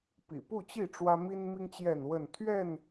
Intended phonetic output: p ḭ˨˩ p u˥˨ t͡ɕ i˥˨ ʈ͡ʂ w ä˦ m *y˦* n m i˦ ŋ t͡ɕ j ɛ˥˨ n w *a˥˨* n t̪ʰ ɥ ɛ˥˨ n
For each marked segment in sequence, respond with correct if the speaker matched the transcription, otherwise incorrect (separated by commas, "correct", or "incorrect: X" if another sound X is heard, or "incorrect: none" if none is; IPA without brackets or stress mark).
incorrect: i˦, incorrect: ə˥˨